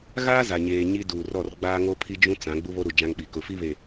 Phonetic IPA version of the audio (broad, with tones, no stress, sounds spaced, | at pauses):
ɣ aː˦ z a˨ ɲ eː˨ ɲ i˦ d uː˨ r ɔ˦˨ r ɡ͡b aː˦ ŋ o˦ pʰ i˦ d͡ʒ ũ˦ t͡s ã˨˦ ɡ͡b u˦ β o˦ ɾ u˨ d͡ʒ ã˦ ŋ ɓ i˨ k ʊ˨ f i˦ β e˨